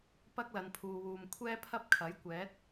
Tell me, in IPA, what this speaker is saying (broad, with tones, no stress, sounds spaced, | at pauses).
p ɐ˥ k̚ l ɐ˨ n pʰ uː˨ w uː˨ m kʷʰ ɛː˥ pʰ ɐ˥ p̚ kʰ ɐ˨˥ j kʷ ɛː˨˥ t̚